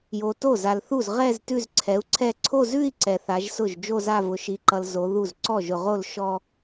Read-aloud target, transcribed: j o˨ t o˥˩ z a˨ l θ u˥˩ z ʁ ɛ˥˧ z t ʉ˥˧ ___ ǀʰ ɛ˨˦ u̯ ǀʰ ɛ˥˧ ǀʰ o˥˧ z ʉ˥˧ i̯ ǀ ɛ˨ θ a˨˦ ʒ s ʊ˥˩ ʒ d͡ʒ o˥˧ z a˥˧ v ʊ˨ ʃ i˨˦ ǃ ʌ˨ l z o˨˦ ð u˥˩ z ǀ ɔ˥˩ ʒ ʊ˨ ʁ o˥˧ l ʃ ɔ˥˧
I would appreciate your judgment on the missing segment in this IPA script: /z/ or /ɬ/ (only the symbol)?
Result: z